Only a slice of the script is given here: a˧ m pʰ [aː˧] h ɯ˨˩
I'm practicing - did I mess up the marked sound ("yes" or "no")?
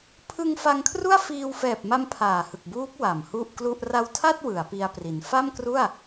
yes